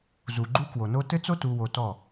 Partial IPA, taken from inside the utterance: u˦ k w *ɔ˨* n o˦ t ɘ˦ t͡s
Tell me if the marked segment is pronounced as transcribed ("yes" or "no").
no